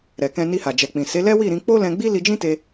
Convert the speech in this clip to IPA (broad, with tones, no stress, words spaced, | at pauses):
ɾɛ˨kɛ̃˧ni˧ha˨ d͡ʒɛ˨k͡pĩ˨ se˨˦lɛ˦wi˦˨ɾĩ˧ k͡po˦lɛ̃˧ɡ͡bi˦ li˧d͡ʒĩ˦te˧